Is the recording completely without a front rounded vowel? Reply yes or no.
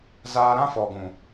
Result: yes